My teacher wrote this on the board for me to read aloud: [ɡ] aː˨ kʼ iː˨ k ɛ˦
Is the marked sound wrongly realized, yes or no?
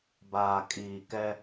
yes